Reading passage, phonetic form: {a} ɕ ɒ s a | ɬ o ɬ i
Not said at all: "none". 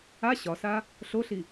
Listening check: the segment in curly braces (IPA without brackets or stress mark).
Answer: a